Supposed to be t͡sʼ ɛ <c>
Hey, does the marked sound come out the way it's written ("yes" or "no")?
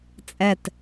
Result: no